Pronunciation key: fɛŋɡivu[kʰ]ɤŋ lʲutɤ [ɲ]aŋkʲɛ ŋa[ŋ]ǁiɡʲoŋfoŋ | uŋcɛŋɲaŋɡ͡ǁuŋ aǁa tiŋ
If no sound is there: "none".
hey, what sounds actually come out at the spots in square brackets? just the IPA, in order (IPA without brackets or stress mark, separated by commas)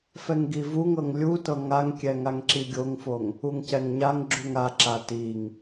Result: ŋ, ŋ, ŋ